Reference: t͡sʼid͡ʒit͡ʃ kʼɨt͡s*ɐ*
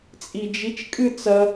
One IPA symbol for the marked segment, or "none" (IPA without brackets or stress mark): ɐ